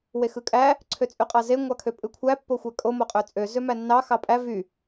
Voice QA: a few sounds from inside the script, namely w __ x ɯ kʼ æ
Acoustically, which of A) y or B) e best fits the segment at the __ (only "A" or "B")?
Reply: B